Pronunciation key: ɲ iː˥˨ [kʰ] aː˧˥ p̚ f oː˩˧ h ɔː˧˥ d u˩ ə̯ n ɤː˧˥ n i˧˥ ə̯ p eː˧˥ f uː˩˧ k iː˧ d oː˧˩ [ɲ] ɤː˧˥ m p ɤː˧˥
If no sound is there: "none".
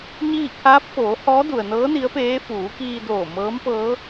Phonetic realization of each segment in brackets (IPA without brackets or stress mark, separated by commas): kʰ, m